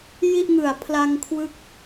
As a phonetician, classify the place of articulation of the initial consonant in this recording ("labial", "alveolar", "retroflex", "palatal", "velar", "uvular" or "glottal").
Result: palatal